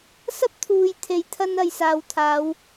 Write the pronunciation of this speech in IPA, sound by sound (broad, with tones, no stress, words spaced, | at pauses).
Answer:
sɐ˥p̚t̪ʰuː˨jt̪ʰe˨jt̪ʰɐ˧n ɐ˨jsaː˨wt̪ʰaː˨˧w